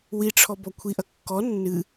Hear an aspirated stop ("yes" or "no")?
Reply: yes